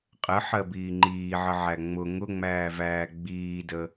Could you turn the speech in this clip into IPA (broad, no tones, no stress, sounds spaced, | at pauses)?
qʼ ə ħ ɜ b iː ŋ͡ǃ iː ʕ ə ʕ æ ŋ͡m ʊ ŋ ʊ ŋ͡m æː v æː ɡ͡b iː d ə